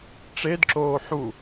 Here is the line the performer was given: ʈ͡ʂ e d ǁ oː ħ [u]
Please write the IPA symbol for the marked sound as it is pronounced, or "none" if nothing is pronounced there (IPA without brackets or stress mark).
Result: u